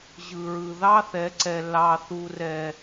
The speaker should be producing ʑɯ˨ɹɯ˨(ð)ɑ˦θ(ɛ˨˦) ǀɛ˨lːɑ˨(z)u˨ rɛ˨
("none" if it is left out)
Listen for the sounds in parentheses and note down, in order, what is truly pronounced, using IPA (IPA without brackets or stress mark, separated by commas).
ð, ɛ˨˦, θ